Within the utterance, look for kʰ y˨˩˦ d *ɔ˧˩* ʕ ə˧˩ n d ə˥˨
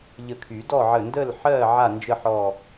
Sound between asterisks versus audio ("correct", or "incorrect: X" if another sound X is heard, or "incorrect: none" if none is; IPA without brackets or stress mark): incorrect: ɔ˥˨